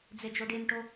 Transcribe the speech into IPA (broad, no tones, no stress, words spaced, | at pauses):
d͡zed͡ʒoɖenʈo